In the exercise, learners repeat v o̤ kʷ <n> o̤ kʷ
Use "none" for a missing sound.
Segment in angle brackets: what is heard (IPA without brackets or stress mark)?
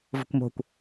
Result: m